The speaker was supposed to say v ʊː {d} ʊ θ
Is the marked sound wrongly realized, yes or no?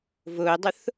yes